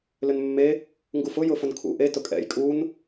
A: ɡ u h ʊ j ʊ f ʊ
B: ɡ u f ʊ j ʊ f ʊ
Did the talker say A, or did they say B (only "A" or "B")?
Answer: B